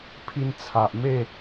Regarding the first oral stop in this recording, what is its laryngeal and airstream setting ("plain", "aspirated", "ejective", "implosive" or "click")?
aspirated